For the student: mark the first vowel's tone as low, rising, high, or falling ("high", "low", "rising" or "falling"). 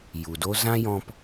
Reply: low